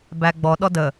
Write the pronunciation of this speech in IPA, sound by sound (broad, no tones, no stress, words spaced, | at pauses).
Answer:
bæɡ͡bɔ ɗɔdə